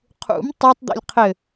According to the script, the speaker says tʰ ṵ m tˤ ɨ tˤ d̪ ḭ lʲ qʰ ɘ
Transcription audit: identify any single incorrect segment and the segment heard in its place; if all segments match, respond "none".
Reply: tʰ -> qʰ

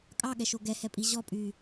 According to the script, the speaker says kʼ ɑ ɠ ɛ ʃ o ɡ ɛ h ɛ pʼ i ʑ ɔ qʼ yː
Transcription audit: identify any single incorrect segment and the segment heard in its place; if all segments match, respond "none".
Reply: qʼ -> pʼ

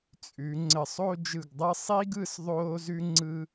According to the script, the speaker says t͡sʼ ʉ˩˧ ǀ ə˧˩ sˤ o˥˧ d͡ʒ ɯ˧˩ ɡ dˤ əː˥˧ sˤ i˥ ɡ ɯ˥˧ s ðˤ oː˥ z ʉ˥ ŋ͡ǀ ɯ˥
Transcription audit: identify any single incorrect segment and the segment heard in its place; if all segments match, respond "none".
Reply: ǀ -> ŋ͡ǀ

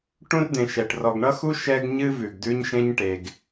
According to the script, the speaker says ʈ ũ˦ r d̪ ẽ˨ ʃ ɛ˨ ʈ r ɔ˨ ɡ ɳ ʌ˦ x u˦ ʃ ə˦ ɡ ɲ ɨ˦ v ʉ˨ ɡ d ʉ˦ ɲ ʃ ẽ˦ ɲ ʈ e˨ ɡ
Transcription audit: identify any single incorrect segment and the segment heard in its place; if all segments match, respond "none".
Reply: ə˦ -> ɛ˦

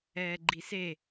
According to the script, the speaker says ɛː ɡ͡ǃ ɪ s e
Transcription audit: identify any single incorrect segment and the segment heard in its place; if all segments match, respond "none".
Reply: ɪ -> i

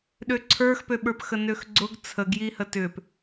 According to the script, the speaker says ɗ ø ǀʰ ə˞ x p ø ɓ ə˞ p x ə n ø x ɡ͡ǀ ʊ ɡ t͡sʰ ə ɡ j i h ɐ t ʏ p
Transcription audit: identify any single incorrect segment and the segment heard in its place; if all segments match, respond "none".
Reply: ɐ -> ə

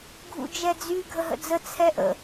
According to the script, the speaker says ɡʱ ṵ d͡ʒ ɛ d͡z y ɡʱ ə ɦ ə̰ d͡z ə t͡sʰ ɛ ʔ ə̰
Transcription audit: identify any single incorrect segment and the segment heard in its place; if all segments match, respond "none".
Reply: none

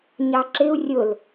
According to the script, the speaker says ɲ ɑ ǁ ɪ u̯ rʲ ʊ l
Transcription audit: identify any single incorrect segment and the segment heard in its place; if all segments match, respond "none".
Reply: none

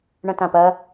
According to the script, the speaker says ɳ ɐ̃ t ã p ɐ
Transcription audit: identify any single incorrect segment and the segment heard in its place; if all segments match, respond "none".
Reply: none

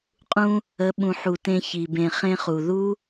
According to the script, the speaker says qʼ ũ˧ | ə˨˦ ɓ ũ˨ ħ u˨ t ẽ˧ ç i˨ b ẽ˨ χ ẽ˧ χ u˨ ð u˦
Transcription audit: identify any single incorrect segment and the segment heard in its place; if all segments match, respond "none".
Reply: none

